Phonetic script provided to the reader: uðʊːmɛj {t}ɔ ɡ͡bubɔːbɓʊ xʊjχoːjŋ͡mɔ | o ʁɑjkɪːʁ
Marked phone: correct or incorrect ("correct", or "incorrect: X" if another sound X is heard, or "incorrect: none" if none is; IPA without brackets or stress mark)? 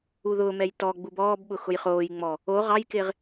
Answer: correct